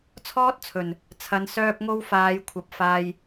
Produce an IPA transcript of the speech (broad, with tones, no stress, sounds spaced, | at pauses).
t͡sʰ ɔː˥ t̚ t͡sʰ ɵ˨ n | t͡sʰ ɐ˨˧ n s œː˧ p̚ ŋ o˧ w f aː˨˧ j kʷʰ ɐ˨ p̚ f aː˧ j